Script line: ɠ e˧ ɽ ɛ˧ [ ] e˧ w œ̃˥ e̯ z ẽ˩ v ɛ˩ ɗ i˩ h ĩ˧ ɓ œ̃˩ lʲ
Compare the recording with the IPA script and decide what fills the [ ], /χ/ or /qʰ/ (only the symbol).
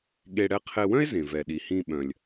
qʰ